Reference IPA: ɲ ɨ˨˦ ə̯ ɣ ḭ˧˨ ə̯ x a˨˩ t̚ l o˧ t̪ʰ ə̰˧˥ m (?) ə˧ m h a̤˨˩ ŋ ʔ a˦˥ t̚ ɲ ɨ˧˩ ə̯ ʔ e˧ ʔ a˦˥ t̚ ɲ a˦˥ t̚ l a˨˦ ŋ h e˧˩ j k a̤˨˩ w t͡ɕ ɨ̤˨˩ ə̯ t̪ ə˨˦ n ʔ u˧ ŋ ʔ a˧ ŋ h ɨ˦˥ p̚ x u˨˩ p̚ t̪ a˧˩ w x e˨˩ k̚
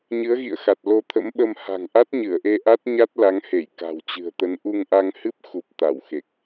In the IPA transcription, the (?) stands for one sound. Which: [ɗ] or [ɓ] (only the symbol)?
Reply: ɓ